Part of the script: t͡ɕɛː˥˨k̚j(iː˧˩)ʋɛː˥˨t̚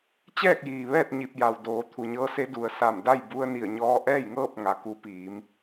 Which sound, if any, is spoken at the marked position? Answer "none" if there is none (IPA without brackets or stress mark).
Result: iː˩